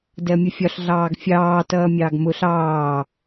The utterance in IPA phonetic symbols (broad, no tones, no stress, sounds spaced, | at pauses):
d ɜ mʲ ʊ fʲ ɒ ɬ ɮ ɑː ɡ fʲ ɑː t ʌː mʲ ɑ ɡ m ʊ ɬ ɑː